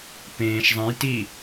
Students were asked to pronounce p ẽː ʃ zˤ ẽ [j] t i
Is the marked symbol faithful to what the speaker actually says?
yes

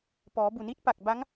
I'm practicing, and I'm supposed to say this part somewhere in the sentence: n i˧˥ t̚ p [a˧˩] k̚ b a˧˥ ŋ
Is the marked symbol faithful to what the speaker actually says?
yes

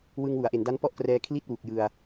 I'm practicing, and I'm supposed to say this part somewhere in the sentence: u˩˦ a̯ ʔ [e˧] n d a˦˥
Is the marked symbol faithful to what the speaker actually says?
no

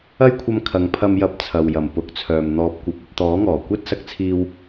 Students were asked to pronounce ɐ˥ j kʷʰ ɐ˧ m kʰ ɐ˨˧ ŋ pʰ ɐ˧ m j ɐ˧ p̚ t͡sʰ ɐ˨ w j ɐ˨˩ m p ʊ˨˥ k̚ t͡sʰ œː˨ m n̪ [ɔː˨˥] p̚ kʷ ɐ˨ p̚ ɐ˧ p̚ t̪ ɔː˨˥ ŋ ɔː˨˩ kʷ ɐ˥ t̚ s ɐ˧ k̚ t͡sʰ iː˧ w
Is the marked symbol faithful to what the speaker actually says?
no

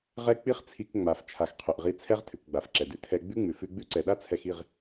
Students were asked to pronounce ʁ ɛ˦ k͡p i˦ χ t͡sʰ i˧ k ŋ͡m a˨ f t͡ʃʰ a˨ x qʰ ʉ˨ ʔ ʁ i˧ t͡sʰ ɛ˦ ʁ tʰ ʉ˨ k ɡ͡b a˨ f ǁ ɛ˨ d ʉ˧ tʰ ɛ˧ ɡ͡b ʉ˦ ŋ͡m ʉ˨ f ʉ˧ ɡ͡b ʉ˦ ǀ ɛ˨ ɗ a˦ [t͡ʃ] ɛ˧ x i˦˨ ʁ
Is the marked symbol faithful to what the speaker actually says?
no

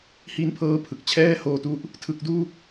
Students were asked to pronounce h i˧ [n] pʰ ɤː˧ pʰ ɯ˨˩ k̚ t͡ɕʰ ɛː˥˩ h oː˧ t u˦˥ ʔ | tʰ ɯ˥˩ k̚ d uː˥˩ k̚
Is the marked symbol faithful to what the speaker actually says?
yes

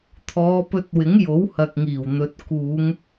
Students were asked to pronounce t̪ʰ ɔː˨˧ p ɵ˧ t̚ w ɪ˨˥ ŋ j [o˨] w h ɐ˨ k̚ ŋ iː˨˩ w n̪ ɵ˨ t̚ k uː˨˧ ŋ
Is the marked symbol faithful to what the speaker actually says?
no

